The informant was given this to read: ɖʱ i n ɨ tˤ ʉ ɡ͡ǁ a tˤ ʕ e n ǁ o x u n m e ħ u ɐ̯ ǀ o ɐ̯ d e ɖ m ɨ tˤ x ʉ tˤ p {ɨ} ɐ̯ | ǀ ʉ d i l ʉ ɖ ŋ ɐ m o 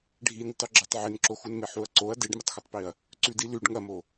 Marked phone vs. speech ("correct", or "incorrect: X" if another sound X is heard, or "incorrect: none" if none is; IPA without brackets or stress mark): incorrect: i